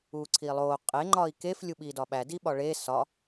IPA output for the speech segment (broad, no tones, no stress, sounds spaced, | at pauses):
uː ǀʰ iː lˠ oː qʼ e ŋ͡ǃ ɒː i̯ k e f lʲ u ɓ iː d ɒ ɓ æ d i ɓ ɒ ɭ eː s ɒ